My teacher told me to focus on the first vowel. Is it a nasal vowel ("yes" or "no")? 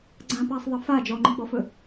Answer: yes